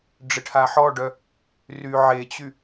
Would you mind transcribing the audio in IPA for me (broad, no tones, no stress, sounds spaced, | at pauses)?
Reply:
ɖ͡ʐ ɪ ʈʰ a ħ ɔ ɖ œ | r y ʕ e t͡ɕ y